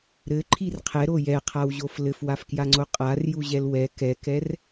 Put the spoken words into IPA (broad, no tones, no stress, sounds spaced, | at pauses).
ɾ ɘ ǃʰ i r qʰ ɛ ɾ o j ɛ qʰ a w ʑ o f l ɘ f w a f k j a ŋ͡ǀ o qʼ a r j u ʑ ɛ l w ɛ k ɛ k ɛ r